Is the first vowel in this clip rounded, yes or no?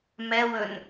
no